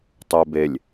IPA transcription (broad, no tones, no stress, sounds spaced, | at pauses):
tˤ ʉ b e lʲ